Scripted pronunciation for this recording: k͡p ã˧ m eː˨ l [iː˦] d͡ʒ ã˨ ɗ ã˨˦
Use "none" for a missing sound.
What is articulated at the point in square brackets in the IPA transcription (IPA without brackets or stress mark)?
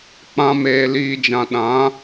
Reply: iː˨